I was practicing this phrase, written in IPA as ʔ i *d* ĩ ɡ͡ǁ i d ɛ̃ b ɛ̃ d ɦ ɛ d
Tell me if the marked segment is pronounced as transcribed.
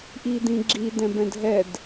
yes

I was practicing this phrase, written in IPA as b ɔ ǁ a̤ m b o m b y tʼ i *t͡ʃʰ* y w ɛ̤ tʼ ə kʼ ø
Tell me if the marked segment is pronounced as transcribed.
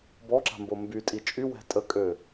no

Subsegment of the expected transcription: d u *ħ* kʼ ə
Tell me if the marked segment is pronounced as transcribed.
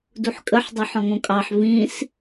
yes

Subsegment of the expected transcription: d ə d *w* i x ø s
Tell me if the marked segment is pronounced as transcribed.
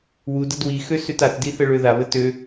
yes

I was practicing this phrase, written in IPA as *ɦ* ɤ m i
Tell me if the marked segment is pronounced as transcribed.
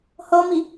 no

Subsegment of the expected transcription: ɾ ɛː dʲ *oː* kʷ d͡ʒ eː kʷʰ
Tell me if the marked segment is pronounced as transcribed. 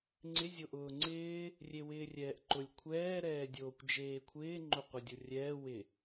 yes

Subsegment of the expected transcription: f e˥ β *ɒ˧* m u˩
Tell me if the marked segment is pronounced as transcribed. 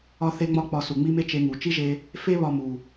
yes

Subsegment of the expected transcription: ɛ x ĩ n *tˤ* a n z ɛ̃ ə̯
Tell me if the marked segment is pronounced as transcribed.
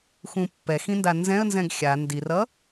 no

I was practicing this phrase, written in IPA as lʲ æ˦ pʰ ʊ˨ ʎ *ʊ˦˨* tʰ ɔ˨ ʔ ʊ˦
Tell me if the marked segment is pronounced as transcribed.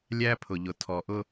no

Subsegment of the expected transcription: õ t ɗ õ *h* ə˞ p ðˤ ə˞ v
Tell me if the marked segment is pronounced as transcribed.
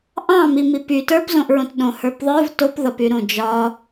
yes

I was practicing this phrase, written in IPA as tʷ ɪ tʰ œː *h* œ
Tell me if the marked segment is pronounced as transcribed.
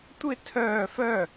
no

